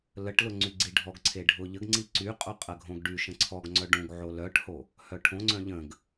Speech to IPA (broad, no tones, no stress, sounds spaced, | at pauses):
l ə ʈ l ʊ ŋ͡ǀ y ɡ͡ǀ i ɖʱ ɔ ɡ ǀʰ e ɖʱ ʊ ʎ ə ɡ ŋ͡ǀ i ǀ y qʼ o qʼ ɐ ɡʱ õ ɡ ɖ y ʃ ə̃ ǀʰ ɔ ɡ ŋ͡ǀ œ ɖ ũ ɡ ʕ o l œ ʈ h o | h œ ʈʰ õ ŋ͡ǀ œ̃ ʎ ə̃ ɡ